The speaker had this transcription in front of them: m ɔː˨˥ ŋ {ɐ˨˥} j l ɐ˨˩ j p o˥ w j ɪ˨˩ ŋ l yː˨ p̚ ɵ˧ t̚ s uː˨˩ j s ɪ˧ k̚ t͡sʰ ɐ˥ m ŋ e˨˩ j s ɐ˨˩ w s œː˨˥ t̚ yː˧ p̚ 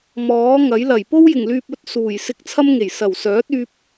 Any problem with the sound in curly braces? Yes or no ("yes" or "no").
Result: no